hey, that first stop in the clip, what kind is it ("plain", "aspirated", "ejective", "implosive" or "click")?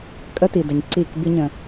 ejective